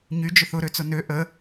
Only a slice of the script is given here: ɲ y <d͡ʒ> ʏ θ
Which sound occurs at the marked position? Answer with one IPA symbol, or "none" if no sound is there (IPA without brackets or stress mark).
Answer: d͡ʒ